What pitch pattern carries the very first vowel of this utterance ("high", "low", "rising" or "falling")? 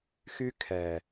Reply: high